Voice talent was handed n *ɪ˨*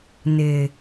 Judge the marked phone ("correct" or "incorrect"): correct